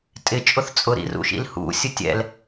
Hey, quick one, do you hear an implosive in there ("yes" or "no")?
no